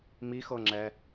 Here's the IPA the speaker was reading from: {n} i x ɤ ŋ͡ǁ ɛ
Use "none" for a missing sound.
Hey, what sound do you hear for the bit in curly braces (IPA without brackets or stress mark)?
m